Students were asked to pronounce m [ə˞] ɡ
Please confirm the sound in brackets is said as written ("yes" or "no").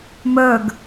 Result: yes